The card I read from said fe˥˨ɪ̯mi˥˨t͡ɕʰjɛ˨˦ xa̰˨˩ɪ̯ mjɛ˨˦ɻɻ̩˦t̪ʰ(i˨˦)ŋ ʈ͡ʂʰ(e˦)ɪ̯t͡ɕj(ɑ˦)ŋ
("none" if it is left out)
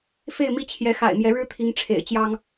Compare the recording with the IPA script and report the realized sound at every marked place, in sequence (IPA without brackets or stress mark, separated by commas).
i˨˦, ḛ˨˩, ɑ˦